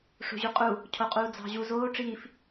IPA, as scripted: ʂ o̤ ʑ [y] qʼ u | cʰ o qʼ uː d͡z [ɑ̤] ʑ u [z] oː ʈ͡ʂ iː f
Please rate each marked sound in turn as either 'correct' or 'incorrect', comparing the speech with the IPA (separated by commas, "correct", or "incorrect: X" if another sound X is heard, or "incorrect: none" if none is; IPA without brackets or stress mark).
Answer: correct, correct, correct